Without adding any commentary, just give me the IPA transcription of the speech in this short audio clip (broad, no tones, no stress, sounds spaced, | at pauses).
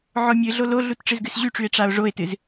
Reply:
ʕ ɔ mʲ ɨ ɮ o l o ɮ u t ʈ͡ʂ ɨ z ɡ ɨ s ʑ y ʈ͡ʂ y e̯ ʈ͡ʂ a o̯ ʐ o e̯ t ɨ z